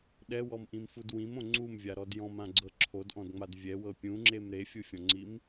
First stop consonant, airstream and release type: implosive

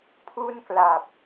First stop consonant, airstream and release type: aspirated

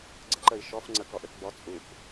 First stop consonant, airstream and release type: click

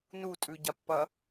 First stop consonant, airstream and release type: ejective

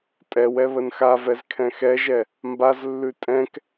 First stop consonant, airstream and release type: ejective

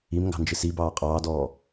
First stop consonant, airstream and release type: plain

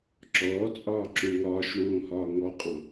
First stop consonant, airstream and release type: click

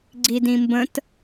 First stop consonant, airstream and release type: click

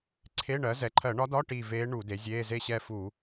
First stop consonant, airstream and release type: click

